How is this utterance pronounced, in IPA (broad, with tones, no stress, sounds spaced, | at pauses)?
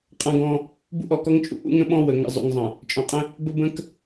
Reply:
qʼ ã˦ ɡ ɔ̃˦ | b ṵ˦ ʔ ɔ˨ k ɔ˦ ŋ t͡ʃʼ ṵ˦ ʔ ṵ˦ ŋ ə̃˦ ɓ ɔ̃˦ w ə˨ ŋ ə̰˨ zˤ ṵ˨ ŋ zˤ ə̃˨ | t͡ʃʼ ɔ̃˨ qʼ ə̃˦ | b ə˦ b ə̃˦ k